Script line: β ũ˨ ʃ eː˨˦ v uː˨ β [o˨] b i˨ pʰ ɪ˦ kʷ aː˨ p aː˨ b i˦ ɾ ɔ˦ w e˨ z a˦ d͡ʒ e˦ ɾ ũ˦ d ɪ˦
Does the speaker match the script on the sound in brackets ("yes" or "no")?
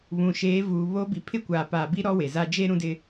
no